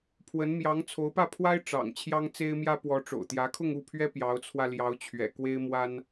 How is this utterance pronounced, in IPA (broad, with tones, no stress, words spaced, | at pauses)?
pʰwə˧˥nmjɑ˧˥ŋ t͡sʰo˧˥ʊ̯pä˥˩pʰwa˥ɪ̯ ʈ͡ʂɑ̰˨˩ŋ t͡ɕʰjɑ˥ŋt͡se˥ɪ̯mjä˥ pwɔ˧˥ʈ͡ʂo̰˨˩ʊ̯t̪jä˧˥kʰʊ˥˧ŋ u˥˩pʰɥɛ˥ pjɑ˧˥ʊ̯t͡sʰwä˧ljɑ˧˥ʊ̯t͡ɕʰɥɛ̰˨˩ kwe˥ɪ̯mwa˥n